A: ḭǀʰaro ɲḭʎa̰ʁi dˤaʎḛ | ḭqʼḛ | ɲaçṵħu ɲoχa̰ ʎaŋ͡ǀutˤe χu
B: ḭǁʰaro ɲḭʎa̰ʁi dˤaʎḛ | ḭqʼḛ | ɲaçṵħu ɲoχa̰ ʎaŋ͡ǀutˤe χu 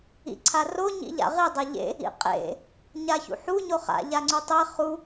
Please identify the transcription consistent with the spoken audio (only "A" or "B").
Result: A